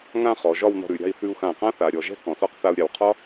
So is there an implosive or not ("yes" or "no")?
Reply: no